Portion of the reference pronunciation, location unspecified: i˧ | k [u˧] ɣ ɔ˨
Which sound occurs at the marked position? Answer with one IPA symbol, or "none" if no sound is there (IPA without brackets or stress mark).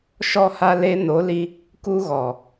u˧